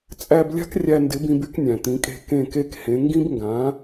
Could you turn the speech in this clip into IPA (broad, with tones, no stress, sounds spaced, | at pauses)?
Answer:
t͡sʼ æ˧ b lʲ a̤˥ k rʲ æ˧ n d ɪ˩˥ b ĩ˧ b y˥ k nʲ æ̃˩ t̪ ĩ˩˥ kʼ e̤˥˩ k ẽ˥˩ k e˥ k h ẽ˩˥ ŋ ɡ ĩ˥ b ŋ ɡ ã˩˥